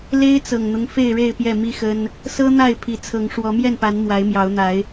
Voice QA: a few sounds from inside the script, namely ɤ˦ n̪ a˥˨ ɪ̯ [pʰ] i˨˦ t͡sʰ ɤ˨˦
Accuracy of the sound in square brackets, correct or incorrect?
correct